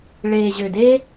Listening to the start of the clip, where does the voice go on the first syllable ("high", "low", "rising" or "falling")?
low